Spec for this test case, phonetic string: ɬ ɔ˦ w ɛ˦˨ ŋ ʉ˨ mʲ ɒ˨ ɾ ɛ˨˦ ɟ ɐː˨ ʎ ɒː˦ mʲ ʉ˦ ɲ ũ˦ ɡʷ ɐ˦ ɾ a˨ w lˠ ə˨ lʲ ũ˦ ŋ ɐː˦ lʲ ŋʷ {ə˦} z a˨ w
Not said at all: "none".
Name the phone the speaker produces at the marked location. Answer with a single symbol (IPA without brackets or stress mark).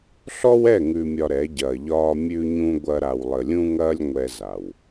ɛ˦